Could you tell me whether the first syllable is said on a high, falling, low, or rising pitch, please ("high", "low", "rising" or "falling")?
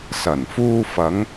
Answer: low